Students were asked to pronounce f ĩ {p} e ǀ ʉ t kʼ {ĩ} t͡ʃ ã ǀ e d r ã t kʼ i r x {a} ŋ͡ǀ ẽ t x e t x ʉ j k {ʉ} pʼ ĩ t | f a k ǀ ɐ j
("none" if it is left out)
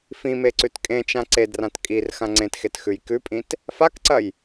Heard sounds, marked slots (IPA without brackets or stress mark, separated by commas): m, ẽ, ã, ʉ